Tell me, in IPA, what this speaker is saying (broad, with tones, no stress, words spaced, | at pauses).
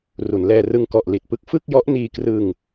ru˩˦nlɛː˧rɯ˧ŋ kɔ˨˩ʔli˨˩t̚pɯ˦˥k̚ fɯ˥˩k̚jɔ˦˥ʔniː˧krɯ˧ŋ